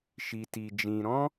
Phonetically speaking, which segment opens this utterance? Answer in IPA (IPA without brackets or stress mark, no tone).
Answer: ʃ